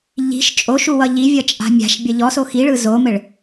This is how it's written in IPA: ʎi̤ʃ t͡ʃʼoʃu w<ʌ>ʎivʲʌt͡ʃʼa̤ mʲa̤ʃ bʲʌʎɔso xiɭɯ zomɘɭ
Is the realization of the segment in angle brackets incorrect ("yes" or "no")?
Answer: no